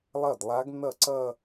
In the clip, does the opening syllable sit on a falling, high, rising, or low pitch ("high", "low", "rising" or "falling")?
falling